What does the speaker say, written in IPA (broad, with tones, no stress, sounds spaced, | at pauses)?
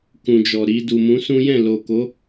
k ũ˨ d͡ʒ ɔ˨ ɾ i˨ d u˨ m ũ˨˦ s ũ˦ j ɛ̃˦˨ l o˨ k o˨˦